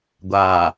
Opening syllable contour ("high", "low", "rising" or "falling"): low